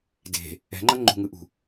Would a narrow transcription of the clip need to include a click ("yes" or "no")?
yes